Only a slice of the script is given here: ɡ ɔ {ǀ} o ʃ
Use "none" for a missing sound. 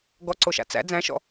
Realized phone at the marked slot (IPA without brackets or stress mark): ǀ